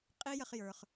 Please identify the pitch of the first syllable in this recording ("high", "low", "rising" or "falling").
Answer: high